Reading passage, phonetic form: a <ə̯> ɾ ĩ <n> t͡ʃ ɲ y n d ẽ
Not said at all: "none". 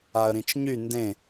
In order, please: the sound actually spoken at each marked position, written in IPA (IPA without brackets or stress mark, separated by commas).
ə̯, none